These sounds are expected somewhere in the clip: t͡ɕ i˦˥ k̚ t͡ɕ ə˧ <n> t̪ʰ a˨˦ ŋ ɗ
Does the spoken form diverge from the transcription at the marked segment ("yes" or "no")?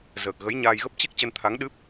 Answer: no